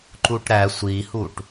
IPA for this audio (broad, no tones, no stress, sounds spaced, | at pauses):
ǃ u ʈ ɾ æ sʷ i h u ʈ